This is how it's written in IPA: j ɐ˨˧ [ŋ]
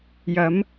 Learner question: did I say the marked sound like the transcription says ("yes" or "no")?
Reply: no